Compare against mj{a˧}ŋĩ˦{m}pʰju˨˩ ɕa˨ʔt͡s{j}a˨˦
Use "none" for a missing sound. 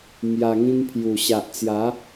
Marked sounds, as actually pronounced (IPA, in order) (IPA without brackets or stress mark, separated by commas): a˧, m, j